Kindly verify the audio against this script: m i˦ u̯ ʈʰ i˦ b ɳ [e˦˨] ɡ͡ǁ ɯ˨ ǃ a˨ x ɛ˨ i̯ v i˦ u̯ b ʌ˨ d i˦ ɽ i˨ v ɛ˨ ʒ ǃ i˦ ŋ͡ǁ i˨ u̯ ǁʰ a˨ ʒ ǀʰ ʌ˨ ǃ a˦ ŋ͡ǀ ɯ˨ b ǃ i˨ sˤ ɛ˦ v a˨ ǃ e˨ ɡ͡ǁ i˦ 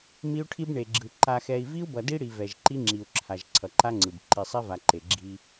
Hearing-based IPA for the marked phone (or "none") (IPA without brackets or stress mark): e˨